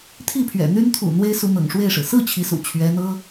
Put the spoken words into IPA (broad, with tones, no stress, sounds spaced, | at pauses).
t̪ʰ i˥˩ pʰ ɥ ɛ̰˨˩ n̪ y˥ n t̪ʰ ṵ˨˩ n̪ w e˥ ɪ̯ s u˧˥ n̪ ɤ̰˨˩ ŋ ʂ w e˥˩ ɪ̯ ʂ ɻ̩˩ s ɹ̩˥˩ t͡ɕʰ i˧˥ s ṵ˨˩ t͡ɕʰ ɥ ɛ˧˥ n̪ ɤ˥